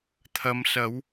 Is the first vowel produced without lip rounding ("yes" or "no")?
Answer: yes